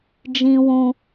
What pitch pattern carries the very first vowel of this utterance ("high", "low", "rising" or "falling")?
high